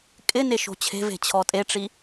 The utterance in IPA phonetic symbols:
kʼ ɪ n e ʃ o̤ t͡ɕʰ e̤ v e̤ t͡ɕʰ ɔ tʼ e ʈ͡ʂ i

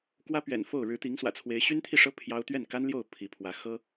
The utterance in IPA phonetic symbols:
k w ä˥ p ɥ ɛ̰˨˩ n f o˥˩ ʊ̯ ɻ ɻ̩˧˥ t̪ i˧˥ ŋ s w ä̰˨˩ t͡sʰ w e˧˥ ɪ̯ ɕ y˥ n t̪ʰ i˥˩ ʂ ɤ˥ pʰ j ɑ˥ ʊ̯ t̪ ɥ ɛ˥˩ n k a˥ n l j o˥˩ ʊ̯ pʰ i˧˥ pʰ w ä˧˥ x ɤ˥

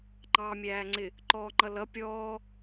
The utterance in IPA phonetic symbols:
ŋ͡ǃ ɑː mʲ æː ŋ͡ǀ ɪ | ǃ ɔː ŋ͡ǃ ʌ l ʌ pʲ ɔː

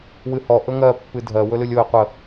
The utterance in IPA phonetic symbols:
w ɨ h ɔ ʔ ɵ ŋ ɜ pː ɨ dʱ ɜ w ɵ l ɨ lʲ o ɪ̯ qʷ ə

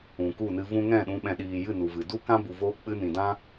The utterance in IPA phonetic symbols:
ũ˨ k u˦˨ n ɨ˧ v ũ˦ ŋ ɛ̃˦˨ ɗ ũ˧ ɓ ɛ̃˨ ɗ iː˨ j ɨ˦˨ n u˨ v ɨ˨ d u˦ k ã˦ b u˨ v oː˧ k͡p ɨ˧ n ĩ˨ d ã˦

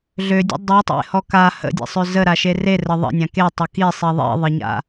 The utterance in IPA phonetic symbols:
ɮ ø dʲ ə̰ dˤ i tˤ ḛ h ɔ k a h ə̰ dʲ ḛ sˤ ø z ə ɾ a ʃ e r e r ə ðˤ ə̰ nʲ ã k e tˤ ʊ k i sˤ i ðˤ ḭ ðˤ ɘ ɲ a̰

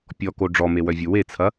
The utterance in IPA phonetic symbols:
pʲ ɔ k o ɖ͡ʐ ɔ m e w œ vʲ ʊ w e t͡sʰ ɐ

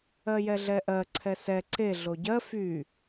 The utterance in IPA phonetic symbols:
ɜ j ɛ ɮ ɛ ʔ ɜ ǀʰ ɛ s ɛ ǀ e ɮ o ɟ ɜ f y

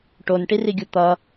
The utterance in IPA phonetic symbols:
ʈ o n ʈ i r i ɡʲ u t̪ ʌ

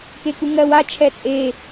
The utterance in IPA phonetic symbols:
k e k u ŋ ɜ w a t͡ʃʰ ɛ t͡sʼ e

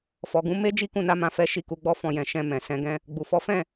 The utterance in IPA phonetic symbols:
f ɔ˨ ɡ ũ˨˦ m e˦ d͡ʒ i˦ k ũ˦˨ n a˨˦ m ã˧ f ɛ˦ ʃ i˦˨ k u˨˦ ɡ͡b ɔ˦ f ɔ̃˧ j ɛ̃˧ ʃ ɛ̃˧ m ɛ̃˨ s ɛ̃˧ ɡ ɛ̃˦ | ɡ͡b u˨ f ɔ˨˦ f ɛ̃˦˨

